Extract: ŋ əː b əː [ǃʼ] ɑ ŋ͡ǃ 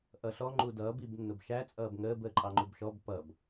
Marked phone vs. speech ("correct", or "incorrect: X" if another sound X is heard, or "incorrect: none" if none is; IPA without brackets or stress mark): correct